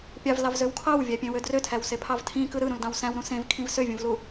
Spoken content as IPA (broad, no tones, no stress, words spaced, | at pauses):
pʲɑvlɑvzøw kʰɑwvʲæpʲẽwø drøtʰæwsepʰɑv tʰĩkɯ ɾɯɾũldɑ̃w sæ̃wɾũ sẽvkʰĩv søvʲũvlu